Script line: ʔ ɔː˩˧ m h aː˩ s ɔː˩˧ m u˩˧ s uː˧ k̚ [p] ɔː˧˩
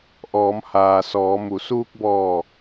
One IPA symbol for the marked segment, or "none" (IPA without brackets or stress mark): b